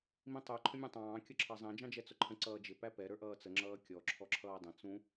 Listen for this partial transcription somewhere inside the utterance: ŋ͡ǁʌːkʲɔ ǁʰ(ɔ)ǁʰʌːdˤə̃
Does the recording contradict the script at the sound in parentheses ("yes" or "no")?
no